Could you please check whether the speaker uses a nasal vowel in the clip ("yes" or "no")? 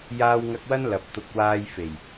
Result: no